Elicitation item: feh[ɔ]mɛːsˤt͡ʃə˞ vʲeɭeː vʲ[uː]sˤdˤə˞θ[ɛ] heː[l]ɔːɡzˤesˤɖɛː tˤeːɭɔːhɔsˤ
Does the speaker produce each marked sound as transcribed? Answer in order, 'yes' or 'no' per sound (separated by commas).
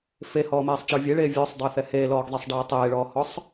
no, no, yes, yes